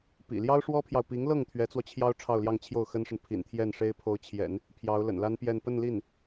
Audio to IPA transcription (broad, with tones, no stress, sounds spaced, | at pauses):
p ḭ˨˩ l j ɑ˥ ʊ̯ ʂ w ɔ˥ pʰ j ɑ˨ ʊ̯ p i˧˥ ŋ l ɤ˥˩ ŋ t̪ʰ ɥ ɛ˧˥ t͡s w ɔ˧ t͡ɕʰ j ɑ˥ ʊ̯ ʈ͡ʂʰ ɑ˥˧ ʊ̯ l j ɑ˥˧ ŋ t͡ɕʰ j o˥˩ ʊ̯ x ə˥ n ʂ ə˨ n pʰ ḭ˨˩ n t̪ʰ j ɛ˥˩ n ʂ e˥ ɪ̯ pʰ o˧˥ ʊ̯ t͡ɕʰ j ɛ̰˨˩˦ n | pʰ j ɑ˧˥ ʊ̯ l ə̰˨˩ n l a˥ n p j ɛ˥˧ n p ə˥˧ n l i˥˩ n